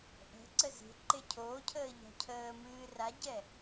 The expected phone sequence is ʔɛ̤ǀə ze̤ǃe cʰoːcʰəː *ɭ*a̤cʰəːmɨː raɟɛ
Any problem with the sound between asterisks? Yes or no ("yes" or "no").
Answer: yes